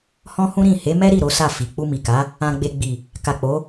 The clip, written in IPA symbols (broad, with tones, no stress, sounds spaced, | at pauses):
h ɔ̃˦ h ũ˦ ɾ ĩ˦˨ h e˨˦ m ɛ˦ ɾ i˦˨ ɾ o˨˦ s a˦˨ f i˨ k͡p u˧ m i˨ k a˨˦ | ã˧ ɡ͡b e˧ ɡ͡b i˨ | k a˨ k͡p o˨˦